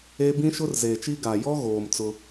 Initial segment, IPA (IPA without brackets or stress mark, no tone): e